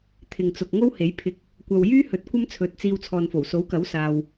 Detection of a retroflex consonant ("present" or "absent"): absent